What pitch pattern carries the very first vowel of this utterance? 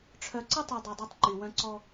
low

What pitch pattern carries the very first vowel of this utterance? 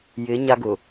rising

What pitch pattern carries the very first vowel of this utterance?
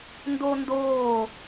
high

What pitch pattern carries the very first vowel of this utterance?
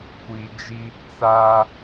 low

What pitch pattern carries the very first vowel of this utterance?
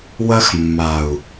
high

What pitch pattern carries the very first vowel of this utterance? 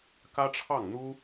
high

